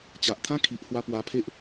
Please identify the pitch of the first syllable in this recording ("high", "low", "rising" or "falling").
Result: low